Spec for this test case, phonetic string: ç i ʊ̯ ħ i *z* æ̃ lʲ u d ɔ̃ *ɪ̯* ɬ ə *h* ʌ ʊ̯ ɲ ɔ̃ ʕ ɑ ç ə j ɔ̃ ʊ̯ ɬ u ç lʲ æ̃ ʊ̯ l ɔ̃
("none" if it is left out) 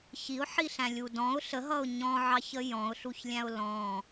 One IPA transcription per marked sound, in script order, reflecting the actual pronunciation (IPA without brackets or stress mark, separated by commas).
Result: ɬ, ʊ̯, ɦ